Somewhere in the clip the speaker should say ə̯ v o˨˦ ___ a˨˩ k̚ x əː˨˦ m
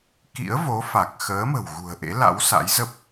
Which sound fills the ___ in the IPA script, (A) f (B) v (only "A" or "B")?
A